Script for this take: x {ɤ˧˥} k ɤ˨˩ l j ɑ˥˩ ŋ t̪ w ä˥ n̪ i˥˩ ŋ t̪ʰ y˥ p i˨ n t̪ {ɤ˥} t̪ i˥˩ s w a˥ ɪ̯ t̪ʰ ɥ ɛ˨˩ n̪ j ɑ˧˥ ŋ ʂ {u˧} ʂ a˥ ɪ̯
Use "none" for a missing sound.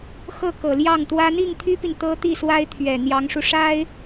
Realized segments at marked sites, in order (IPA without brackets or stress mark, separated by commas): ɤ˥˩, ɤ˥, u˧